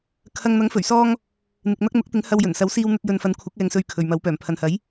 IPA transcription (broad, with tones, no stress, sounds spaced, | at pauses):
kʰ ɐ˧ ŋ n̪ ɐ˨˥ ŋ f ɵ˨˩ ɥ s ɔː˧ ŋ | n̪ ɪ˨ k̚ n̪ ɐ˥ k̚ n̪ ʊ˨˥ k̚ t̪ ɪ˨˥ ŋ h ɐ˧ w j ɵ˨˩ n s ɐ˨˥ w s iː˧ w n̪ ɵ˧ t̚ j ɵ˨ n f ɐ˨˥ n kʷʰ ɐ˨˥ k̚ ɛː˧ ŋ s ɵ˧ ɥ kʰ ɵ˨ ɥ m ɐ˨˥ w p œː˨˩ m pʰ ɐ˨ n h ɐ˨˥ j